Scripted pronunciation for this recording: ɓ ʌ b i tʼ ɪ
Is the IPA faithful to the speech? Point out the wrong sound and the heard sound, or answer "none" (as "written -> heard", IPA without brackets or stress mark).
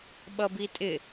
none